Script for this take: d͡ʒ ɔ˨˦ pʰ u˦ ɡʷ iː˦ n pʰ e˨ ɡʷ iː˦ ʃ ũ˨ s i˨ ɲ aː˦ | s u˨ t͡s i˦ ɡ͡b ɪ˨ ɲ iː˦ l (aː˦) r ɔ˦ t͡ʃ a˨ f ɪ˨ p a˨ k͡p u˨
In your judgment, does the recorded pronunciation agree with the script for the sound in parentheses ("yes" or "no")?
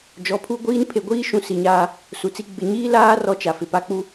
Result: yes